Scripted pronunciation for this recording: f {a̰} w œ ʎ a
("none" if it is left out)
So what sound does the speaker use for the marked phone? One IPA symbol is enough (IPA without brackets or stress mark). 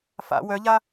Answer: a̰